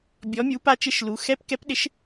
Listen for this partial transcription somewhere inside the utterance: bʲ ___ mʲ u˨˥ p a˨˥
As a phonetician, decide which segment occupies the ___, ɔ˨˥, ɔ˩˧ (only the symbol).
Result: ɔ˨˥